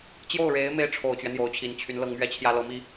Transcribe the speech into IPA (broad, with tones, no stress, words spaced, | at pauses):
t͡ɕjo˥˩ʊ̯ɻe˧˥ɪ̯ me˥ɪ̯ʈ͡ʂʰo˨˩ʊ̯t͡ɕɥɛ˦ n̪jo˧˥ʊ̯t͡ɕʰi˨˩nt͡ɕʰy˧˥nlɤ˥ŋ mɥɛ˥˩t͡ɕʰjä˥lɤ˧˥mi˥